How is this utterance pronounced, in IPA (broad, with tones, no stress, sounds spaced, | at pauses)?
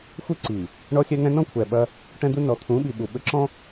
xʷ ɨ˦ ǀ i˨ | ɳ ɔ˦ xʲ ɛ˦ ŋ ɛ̃˦ n ɔ̃˦ kʷʰ ɛ˨ ɓ ɐ˦ | ʈ ɛ̃˦ d̪ u˦ n ɔ˨ t̪ʰ ũ˨˦ ɓ i˨ ɓ u˨ ɓ ɘ˦ ǁ ɔ̃˦